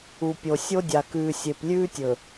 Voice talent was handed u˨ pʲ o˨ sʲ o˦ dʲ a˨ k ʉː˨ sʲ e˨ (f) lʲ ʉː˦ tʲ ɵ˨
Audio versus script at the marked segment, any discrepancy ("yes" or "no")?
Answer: yes